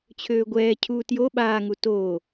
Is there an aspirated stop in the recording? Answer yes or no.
yes